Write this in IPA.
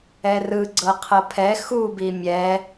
ɛrɯ ɡ͡ǀɤqʰɤpʰɛ xu bimʲɛ

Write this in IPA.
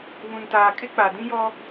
βũ˨ntaː˨kʼɪ˦ k͡pa˨dĩ˦jɔ˦

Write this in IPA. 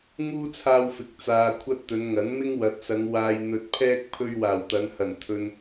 ŋuː˥t͡sʰaː˧wfɪ˨k̚ t͡saː˨kʷʰɐ˧t̚ t̪ɵ˨˧nŋɐ˨˥nmɪ˥ŋ wɐ˨t̚sɐ˨˧ŋ waː˨jn̪ɵ˨t̚ pʰɛː˥k̚ pʰɵ˧ɥwaː˨˩w t̪ɐ˨˧nhɐ˨˩n t̪ʰɵ˨n

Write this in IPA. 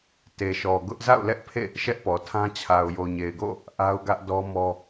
te˨ʃɔ˨ɡʊ˦ʔ za̰˦˨ʊ̯lɛ˦ʔpʰḛ˦˨ | ʃɛ˦ʔpɔ˨tʰã˦ t͡ɕʰa˨ʊ̯jo˨ɲe˨ɪ̯ɡo̰˦˨ | ʔa˦ʊ̯ɡä˦ʔdɔ˦mɔ˦

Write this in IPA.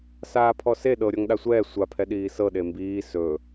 saːpʰɔse ɗɤɾʲɔŋ ɗasʷɛː sʷapʰɛ ɗiːsɤɗe mbiː sɵ

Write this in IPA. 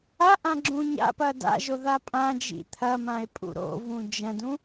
aʔã ɡ͡ǁũɲa̰pɐ da̰ʒo ðapʼãd͡ʒḭ t̪ʰɐmãe̯ pʼṵɾo̰vũ d͡ʒɐ̃dũ

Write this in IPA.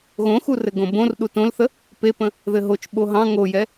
ɣõxurɘ ɡõbõr ɗutõlθə | pepə̃ | ðɘɦot͡ʃ ɓoɦɑ̃ ŋojɛ

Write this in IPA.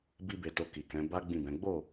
bi˦be˧to˧ ki˨kɛ̃˨˦ ba˦ ɡ͡bĩ˦˨bɛ̃˨˦ ɡ͡bo˦˨

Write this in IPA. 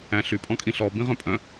æ̃ɬy pʼɔ̃kʼĩɬɔ bĩʁœ̃pʼœ̃

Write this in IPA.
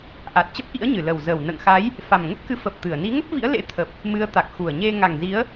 ʔa˨˩t̚t͡ɕə˦˥p̚ʔḭ˧˥ə̯ɲɨ˧˩ lə˨˩wzəː˨˩wnə̰ː˧˨ŋxa˨˦j | fa˨˩mŋə˦˥p̚kɨ˨˦ fə˨˩p̚ t̪ɨ˧˩ə̯ ni˨˦ŋə˦˥p̚vḭ˧˥ə̯ lḛ˧˥t̪ʰə˨˩p̚ | mɨ˨˦ə̯ t̪a˨˩k̚xu˨˩ə̯ɲe˧ ŋa˨˩ŋ zi˨˦ə̯

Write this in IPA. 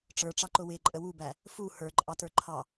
ʈ͡ʂə˞ʈ͡ʂɑǃʊ wɪǃʼə wubæ | fu hə˞ǃʼɑtə˞ ǃʰɑ

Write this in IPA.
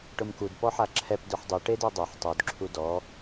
ʈʊmkud pɔħaǁʰɛp dœħdˤu ʈedɛdˤœħ tˤud ǁʰudɔ

